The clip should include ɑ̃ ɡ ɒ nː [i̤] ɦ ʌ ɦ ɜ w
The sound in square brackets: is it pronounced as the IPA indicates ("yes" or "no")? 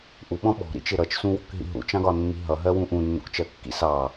yes